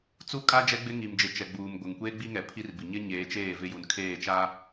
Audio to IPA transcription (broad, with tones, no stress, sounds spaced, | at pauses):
t͡s u˦ kʼ a˦ d͡ʒ ɛ˦ ɡ͡b ɪ˦ ŋ i˨ m d͡ʒ ɪ˨ t͡ʃ ɛ˨ ɡ͡b uː˨ m ɡʷ ɪ˨ ŋ kʷ eː˦ ɡ͡b i˦ ŋ ɛ˨ pʰ i˦ r b i˨ ɲ ɪ˦ ɲ eː˨˦ t͡ʃ eː˦˨ v ɪ˦ j u˨ n kʰ eː˦˨ t͡ʃ a˦